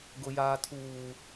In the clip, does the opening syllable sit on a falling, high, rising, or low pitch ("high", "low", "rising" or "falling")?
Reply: low